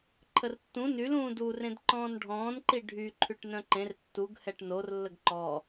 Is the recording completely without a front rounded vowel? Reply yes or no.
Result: no